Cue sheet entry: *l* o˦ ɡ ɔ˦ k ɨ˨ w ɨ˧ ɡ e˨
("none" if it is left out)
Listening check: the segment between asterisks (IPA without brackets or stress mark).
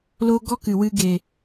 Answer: l